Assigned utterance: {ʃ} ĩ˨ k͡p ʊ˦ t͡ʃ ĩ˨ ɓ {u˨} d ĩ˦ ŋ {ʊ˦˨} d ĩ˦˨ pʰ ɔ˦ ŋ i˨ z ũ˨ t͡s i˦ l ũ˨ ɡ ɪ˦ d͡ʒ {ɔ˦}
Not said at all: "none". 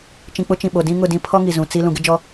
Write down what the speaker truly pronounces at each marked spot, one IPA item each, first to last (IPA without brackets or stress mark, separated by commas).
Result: t͡ʃ, o˨, ʊ˦˨, ɔ˦